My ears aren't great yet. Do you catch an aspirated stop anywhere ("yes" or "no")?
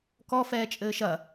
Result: no